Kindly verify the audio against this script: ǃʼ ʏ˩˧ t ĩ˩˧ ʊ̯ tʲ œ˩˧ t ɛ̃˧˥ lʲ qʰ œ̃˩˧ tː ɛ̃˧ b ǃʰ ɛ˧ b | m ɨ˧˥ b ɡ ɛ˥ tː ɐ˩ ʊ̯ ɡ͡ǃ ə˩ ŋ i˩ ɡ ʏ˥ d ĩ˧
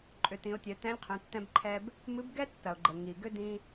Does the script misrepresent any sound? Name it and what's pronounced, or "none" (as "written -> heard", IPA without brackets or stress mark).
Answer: none